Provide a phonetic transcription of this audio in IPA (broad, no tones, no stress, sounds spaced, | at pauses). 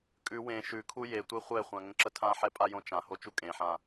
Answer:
kʼ ʉ w ẽ ʃ ʉ kʰ u j e tʷ e χʷ ɛ χʷ ã ŋ ə̃ ǁ ə tʰ ã ħ ɛ pʼ a j õ t͡ʃ ã h o t͡ʃ u kʼ ẽ ħ ã